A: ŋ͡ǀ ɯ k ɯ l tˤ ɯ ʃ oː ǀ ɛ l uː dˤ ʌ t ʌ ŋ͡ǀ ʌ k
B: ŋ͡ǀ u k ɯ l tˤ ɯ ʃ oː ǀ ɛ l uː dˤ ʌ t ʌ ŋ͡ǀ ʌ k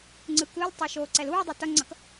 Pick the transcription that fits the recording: A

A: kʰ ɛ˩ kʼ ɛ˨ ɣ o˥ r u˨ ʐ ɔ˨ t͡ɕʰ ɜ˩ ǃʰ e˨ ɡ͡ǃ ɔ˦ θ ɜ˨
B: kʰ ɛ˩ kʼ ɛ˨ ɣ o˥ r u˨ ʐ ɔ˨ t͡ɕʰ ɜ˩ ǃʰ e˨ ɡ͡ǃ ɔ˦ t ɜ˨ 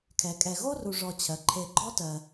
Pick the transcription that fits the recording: B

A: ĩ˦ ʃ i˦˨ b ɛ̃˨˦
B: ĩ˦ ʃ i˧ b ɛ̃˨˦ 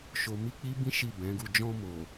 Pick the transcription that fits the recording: A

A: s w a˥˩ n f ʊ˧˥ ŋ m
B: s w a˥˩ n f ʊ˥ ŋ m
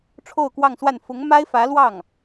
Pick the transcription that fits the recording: A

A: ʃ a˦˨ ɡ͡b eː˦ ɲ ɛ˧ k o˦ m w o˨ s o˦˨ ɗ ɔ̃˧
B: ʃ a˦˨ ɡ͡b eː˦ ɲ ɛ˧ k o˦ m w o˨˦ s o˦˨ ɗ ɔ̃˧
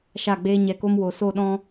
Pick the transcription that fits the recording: A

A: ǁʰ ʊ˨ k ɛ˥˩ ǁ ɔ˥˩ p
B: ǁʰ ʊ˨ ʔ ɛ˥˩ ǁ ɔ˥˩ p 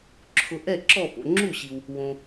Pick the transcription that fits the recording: B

